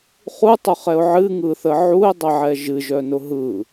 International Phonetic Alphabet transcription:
χutˤʊχɛʊ̯ ʕɨŋɯθə ʕuɪ̯dˤəʕɛ ʒɨʒœnʊ ɦɯ

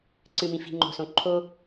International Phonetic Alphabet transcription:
ǀɨ˨mĩ˨fi̤˨ ŋ͡ǃo̤˨sõ˨ ǃʰo˦

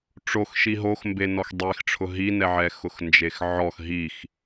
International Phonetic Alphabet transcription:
ʈ͡ʂoxʃi ɦoxmbe nɔxdˤexʈ͡ʂʰʊ ɦinɛʕɛ xʊxnd͡ʒexʕɔx ɦix

